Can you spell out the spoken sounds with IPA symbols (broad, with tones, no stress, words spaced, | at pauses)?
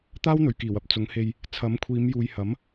t̪aː˥wn̪ɵ˨˩ɥkiː˨˩wɐ˨p̚ t͡sʊ˨˧ŋhe˧j | t͡sʰɐ˨˥mkʷʰiː˨˧mjuː˨j hɐ˨˥m